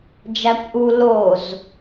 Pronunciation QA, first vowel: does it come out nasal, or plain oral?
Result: oral